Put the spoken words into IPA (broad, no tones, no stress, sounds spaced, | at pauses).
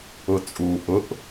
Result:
ʊ t͡sʼ u ʔ ʊ ʔ